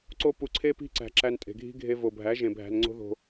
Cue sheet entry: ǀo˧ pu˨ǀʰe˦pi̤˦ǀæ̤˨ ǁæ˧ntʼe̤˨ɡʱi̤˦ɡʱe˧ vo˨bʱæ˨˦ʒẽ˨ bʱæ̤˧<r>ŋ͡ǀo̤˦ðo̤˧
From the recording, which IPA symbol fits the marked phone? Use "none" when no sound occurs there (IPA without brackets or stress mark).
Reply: n